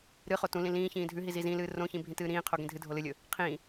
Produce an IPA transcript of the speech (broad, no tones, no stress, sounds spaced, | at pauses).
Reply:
ɾ ɨ χ o t ũ l ĩ l ĩː ç ĩː dʱ ʉ ɦ i z i z ĩ l ɨː r õ ç ĩ bʱ ĩ t ɨː ɾ ĩː qʰ o ɡ ĩ dʱ ɨ dʱ o l ɨ lʲ ɵ | qʰ ĩː